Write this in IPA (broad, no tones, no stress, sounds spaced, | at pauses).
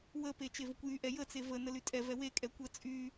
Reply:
w ə p e t͡ʃ e v ə kʷ j y ʔ ɛ j ə t͡s e v ə n ə l y tʼ ɛ v ɛ w e kʼ ɛ kʷ ə t͡sʼ y